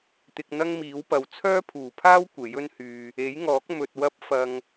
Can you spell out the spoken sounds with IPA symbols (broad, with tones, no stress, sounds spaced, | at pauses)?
t̪ ɪ˧ k̚ n̪ ɐ˥ ŋ m iː˨˥ w p ɐ˨˧ w t͡sʰ œː˥ pʰ uː˨˩ pʰ aː˥ w kʷ e˨˥ j ɵ˥ n h yː˧ | e˨˥ j ŋ ɔː˨˥ k̚ m ɵ˧ t̚ w ɐ˥ p̚ f ɐ˧ ŋ